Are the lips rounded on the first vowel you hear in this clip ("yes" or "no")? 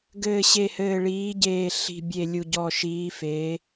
no